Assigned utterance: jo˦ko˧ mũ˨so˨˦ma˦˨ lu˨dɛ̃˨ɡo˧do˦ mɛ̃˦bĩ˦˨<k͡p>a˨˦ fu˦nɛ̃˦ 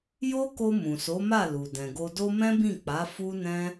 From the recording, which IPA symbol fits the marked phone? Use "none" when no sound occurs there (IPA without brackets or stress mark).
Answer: k͡p